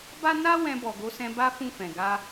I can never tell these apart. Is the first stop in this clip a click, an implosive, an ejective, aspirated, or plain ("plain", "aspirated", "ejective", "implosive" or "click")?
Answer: plain